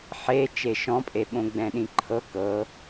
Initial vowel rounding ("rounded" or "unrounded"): unrounded